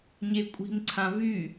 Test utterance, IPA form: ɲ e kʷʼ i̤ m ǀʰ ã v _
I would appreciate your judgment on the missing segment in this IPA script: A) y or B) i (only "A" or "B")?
A